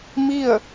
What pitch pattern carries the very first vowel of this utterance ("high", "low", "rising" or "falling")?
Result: falling